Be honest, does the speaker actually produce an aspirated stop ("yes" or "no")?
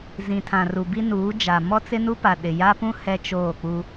yes